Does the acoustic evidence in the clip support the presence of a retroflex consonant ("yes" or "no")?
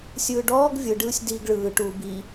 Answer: yes